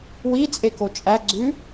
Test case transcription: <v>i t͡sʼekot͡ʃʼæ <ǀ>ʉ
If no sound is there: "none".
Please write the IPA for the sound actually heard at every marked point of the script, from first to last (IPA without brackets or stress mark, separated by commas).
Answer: w, ɡ͡ǀ